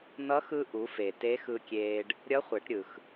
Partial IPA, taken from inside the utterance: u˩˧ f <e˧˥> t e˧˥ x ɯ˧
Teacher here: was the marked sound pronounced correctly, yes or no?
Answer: no